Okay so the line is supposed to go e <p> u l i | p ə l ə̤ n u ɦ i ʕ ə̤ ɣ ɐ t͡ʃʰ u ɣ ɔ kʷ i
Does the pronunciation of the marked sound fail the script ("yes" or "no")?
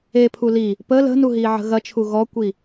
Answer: yes